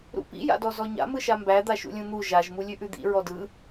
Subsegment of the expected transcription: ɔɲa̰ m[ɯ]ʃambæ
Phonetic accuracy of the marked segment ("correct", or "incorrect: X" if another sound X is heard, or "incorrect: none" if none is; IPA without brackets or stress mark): correct